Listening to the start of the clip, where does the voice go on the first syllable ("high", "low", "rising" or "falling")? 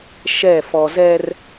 falling